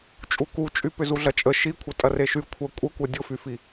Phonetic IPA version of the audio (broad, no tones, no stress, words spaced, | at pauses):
t͡ʃʼukut͡ʃʼy pʏzuɮɐt͡ʃʼə ʃikʷʰɐ tʼɐreʃy kʷʰɐ kʷʼəkʷɐ dʲʊfyfi